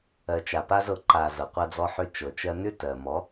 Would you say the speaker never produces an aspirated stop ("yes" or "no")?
yes